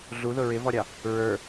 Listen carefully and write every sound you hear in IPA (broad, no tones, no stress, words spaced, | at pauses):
ɮuðʊ ɹɪvɔɾʲɑ | ɹə˞